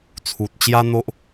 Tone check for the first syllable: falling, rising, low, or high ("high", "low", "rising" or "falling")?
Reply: low